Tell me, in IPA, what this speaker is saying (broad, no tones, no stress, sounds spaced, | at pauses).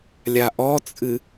lʲ a ʔ ɔ t͡sʼ ɨ